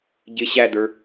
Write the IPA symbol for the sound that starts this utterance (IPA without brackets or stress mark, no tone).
ɟ